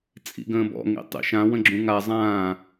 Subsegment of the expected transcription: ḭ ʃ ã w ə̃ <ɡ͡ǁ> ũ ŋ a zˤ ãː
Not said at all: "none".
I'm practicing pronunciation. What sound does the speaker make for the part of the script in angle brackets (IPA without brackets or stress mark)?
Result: ɡ͡ǁ